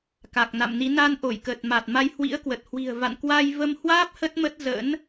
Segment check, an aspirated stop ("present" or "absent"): absent